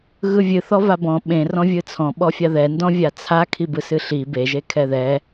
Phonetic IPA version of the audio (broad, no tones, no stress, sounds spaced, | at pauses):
ɣ ɯ vʲ ɨ θ ɔ v a b ɔ̃ ɓ ẽ r ɔ̃ vʲ ɯ t͡sʰ ɔ̃ ɓ ɔ fʲ a ð ɛ n d ɔ̃ vʲ a t͡sʰ a kʰ i b ɯ s ɨ ɬ i b e ʒ e kʰ ɛ ð ɛ